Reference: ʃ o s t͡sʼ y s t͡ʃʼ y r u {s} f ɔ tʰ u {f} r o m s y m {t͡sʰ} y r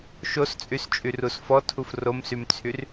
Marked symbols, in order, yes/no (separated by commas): yes, yes, yes